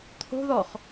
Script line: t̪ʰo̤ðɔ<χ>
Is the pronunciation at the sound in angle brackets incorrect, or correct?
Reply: correct